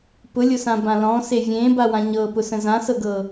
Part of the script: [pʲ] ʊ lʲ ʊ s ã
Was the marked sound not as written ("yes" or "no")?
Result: yes